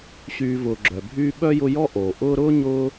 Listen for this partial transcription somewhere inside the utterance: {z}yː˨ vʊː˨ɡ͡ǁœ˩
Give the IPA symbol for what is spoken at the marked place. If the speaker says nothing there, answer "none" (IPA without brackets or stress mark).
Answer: ɕ